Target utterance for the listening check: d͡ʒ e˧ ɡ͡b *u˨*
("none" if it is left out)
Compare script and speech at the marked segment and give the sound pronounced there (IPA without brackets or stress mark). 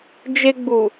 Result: u˨